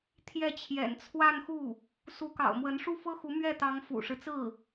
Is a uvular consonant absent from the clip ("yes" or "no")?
yes